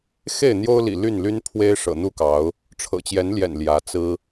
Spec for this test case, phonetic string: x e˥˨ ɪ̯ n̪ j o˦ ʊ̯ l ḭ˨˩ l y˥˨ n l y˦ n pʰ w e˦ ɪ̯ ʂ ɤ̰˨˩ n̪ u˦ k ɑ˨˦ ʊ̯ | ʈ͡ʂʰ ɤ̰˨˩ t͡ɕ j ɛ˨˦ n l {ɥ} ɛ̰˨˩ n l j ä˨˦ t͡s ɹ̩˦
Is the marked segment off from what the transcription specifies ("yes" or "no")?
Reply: yes